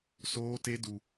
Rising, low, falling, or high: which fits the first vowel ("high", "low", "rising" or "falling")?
high